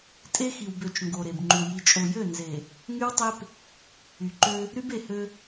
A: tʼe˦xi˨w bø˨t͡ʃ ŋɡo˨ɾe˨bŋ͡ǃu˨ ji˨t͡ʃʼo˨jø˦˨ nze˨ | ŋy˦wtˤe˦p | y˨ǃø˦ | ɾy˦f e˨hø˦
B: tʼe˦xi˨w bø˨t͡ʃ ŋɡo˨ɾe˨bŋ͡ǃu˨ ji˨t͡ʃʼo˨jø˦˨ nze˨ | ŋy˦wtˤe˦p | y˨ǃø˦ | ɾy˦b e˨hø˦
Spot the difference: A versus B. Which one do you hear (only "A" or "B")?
B